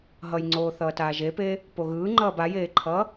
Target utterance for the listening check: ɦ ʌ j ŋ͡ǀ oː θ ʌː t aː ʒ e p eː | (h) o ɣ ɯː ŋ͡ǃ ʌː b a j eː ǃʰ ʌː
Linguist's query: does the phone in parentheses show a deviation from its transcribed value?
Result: yes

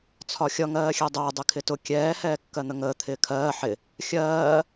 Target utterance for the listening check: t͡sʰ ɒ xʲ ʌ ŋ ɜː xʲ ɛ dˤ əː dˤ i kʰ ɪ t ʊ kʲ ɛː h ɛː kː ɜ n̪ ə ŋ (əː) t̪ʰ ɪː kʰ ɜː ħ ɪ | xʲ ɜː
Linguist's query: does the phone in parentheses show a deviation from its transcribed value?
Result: no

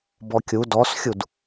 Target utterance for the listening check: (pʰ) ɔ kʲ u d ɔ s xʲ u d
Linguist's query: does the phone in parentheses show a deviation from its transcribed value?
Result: yes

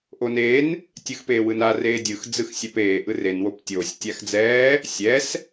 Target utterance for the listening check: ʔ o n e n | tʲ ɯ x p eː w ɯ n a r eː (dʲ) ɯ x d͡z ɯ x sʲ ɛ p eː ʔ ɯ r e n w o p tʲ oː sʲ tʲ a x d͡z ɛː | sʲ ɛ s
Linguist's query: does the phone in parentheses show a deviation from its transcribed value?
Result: no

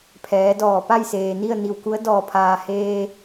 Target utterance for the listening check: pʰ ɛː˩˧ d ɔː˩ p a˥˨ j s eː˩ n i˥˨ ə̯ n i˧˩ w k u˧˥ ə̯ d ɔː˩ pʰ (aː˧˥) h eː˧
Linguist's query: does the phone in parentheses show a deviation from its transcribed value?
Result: yes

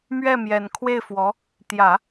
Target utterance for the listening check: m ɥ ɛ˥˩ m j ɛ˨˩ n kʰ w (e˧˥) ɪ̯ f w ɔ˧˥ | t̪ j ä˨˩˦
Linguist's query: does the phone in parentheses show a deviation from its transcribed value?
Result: yes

